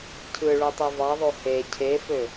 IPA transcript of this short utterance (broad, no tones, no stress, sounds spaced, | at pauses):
cʰ ɯ ɭ u tˤ u v ɑ ðˤ o h e cʰ e f ø